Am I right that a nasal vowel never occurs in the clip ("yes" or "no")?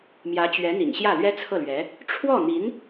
yes